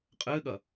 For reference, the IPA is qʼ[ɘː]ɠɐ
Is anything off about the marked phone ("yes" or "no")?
no